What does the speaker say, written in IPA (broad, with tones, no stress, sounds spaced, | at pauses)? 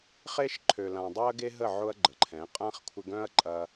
χ e˦ ʃ ǃʰ ø˨ l ã˨ dˤ ø˦ ɐ̯ ɡ e˦ ɦ ə˦˨ ʕ ʊ˦ ɐ̯ ɡ͡ǃ ə˨ ǃʰ ɛ̃˨˦ qʼ ã˦ χ kʷʰ ɪ˧ ɡ œ̃˦ ɐ̯ ǃʼ ɐ˧